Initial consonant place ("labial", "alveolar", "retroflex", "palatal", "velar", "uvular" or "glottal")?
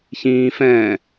palatal